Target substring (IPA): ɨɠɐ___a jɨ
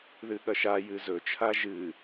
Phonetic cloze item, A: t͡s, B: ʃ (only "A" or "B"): B